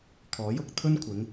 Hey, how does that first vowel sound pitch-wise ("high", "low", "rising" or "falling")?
rising